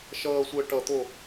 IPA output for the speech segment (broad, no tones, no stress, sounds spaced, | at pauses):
ʃ ʌː sʷ əː ʈ ʌ t̪ o